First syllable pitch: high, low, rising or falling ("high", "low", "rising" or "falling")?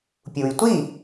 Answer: low